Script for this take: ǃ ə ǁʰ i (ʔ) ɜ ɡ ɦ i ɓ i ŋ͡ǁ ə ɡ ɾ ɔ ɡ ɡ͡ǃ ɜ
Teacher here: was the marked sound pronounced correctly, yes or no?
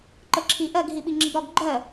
yes